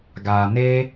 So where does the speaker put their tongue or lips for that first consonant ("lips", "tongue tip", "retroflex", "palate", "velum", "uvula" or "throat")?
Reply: velum